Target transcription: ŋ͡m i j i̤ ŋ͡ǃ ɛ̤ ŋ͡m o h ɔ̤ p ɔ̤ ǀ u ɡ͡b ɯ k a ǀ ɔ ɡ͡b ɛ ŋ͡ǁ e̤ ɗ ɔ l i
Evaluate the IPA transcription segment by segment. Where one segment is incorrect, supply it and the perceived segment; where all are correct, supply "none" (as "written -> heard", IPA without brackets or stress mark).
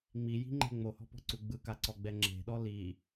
none